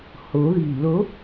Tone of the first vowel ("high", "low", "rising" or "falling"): rising